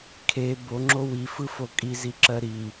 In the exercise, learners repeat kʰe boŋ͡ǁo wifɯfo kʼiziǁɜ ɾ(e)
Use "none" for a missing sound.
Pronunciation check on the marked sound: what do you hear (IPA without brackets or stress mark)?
i